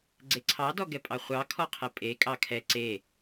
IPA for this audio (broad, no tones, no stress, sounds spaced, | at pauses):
ɡ͡ǀ e ǀʰ ɑ d ɔ ɡ ɛ pʼ ɑ χʷ ɑ kʰ ɔ qʰ ɛ pʼ e kʼ ɑ kʰ ɛ ǀ e